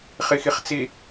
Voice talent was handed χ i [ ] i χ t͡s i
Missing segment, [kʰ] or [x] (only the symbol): x